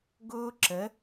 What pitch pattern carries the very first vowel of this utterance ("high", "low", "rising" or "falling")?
high